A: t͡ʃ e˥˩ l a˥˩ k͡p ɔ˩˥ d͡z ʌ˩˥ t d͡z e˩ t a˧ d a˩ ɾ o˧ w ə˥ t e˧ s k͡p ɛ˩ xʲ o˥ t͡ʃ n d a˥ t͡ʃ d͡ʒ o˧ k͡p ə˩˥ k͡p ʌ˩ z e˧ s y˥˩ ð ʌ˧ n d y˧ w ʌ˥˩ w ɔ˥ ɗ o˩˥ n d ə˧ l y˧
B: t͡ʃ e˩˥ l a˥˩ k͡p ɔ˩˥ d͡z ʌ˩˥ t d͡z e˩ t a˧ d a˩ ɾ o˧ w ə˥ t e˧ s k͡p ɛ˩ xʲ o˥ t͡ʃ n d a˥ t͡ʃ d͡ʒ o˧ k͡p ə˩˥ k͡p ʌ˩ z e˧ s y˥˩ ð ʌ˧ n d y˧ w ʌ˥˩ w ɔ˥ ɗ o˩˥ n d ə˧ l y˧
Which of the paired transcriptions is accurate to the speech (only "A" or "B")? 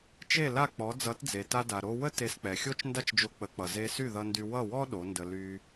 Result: A